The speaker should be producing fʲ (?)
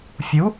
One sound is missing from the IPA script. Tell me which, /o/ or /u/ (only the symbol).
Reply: u